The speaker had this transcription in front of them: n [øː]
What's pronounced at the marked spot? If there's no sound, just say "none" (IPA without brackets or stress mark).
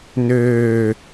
øː